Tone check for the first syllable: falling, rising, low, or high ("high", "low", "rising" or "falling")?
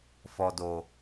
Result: low